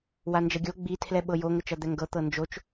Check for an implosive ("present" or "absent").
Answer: present